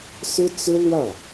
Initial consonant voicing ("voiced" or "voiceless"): voiceless